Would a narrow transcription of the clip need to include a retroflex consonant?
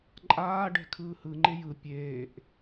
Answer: yes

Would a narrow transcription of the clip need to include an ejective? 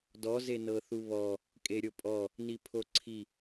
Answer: yes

